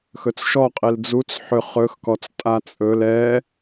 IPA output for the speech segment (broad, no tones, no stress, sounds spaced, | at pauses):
x ɵ t͡s ʃ ɔ qʼ i l d͡z u t͡s ħ ʏ χ ɵ x k ɔ t͡s tʼ a t͡sʼ ɵ l ɛ